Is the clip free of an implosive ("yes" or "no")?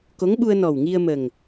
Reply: no